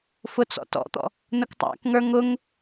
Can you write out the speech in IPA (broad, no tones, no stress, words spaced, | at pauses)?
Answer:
fʊt͡sɔ̰tɔ̰t̪ɔ̰ | nʊktˤæ̰kŋə˞ ŋʊŋ